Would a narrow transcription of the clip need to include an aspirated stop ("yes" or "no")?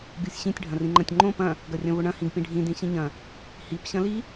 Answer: no